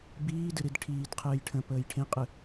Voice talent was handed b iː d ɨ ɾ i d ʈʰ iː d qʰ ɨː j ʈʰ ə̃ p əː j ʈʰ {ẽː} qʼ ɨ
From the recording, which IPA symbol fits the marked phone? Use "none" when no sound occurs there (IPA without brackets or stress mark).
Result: ẽ